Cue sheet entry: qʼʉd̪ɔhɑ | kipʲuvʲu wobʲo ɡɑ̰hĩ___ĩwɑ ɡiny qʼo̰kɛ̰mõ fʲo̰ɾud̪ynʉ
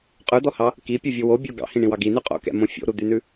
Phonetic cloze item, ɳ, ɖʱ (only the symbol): ɳ